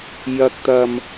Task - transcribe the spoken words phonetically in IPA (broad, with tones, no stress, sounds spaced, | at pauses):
j ɐ˨ k̚ t̪ ɐ˨ m